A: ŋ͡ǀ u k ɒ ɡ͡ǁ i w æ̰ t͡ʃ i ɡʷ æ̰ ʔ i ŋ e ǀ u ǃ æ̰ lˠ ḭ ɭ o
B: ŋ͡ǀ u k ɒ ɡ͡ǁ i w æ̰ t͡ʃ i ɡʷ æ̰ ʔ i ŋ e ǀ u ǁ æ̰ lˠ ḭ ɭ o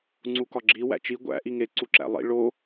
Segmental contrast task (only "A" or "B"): B